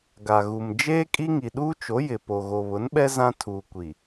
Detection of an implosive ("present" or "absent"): present